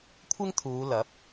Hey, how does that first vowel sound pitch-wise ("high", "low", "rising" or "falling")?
high